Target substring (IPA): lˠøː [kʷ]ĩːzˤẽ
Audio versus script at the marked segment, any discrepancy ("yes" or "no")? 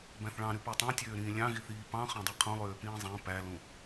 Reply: yes